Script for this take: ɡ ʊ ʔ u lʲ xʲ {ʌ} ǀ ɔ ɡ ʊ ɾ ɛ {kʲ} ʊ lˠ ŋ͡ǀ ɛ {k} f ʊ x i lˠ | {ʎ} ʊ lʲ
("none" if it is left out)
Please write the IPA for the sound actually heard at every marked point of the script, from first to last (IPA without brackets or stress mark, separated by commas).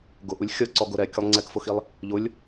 ʌ, kʲ, k, ʎ